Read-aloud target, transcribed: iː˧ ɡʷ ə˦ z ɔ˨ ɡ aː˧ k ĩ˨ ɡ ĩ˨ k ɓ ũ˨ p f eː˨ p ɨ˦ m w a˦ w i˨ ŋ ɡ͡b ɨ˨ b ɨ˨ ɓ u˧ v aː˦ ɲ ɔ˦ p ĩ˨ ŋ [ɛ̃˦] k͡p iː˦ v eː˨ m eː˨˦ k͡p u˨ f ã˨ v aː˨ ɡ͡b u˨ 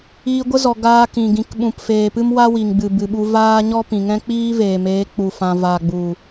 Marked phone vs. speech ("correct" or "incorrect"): correct